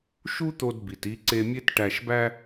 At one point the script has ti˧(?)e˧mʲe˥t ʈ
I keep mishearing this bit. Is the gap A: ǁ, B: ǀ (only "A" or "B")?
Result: B